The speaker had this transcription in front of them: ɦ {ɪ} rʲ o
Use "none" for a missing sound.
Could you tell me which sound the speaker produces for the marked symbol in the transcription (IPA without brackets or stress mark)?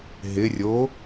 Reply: ɪ